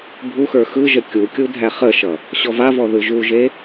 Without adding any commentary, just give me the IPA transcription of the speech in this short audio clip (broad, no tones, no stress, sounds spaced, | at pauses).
bʱ u x ə˞ x ɯ ʒ ə kʲ u kʲ u dʱ æ χ ə ʃ ʌ | ɕ ɔ v a v ɔ ð ɯ ʒ u ʒ e